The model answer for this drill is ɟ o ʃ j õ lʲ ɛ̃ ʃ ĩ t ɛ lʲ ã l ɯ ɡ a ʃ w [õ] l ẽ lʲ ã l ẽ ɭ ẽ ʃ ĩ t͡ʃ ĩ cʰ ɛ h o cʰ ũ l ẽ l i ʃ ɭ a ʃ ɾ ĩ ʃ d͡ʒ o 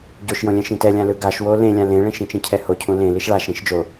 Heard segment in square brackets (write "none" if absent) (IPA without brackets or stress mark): o